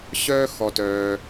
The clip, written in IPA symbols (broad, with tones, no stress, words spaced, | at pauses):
ɕœː˧ xɔ˩tœː˩